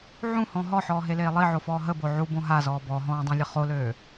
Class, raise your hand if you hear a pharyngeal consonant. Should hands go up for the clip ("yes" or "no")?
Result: yes